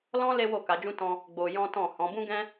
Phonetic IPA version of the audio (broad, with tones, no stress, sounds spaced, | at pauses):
l ɔ̃˦ l e˦ w o˦˨ k a˨˦ d͡ʒ ũ˦ t ɔ̃˧ | ɡ͡b o˧ j ɔ̃˦ t ɔ̃˦˨ h ɔ̃˨˦ b ũ˦ ɡ ɛ̃˦